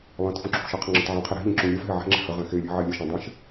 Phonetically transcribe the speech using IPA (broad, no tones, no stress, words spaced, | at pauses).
lˠẽt fũǁʰṳʃɛ qʰə̃ŋ͡ǁə̃tʕɛ̃qʰɛ ɾe̤ ʎə̃ ǁũlʲɛfɦɛ ʕɛ̤ŋ͡ǁɛ̤ hə ʁɛ̃xelʲa̤ ʕelʲəʃɛ̃ dˤɛ̃ʃ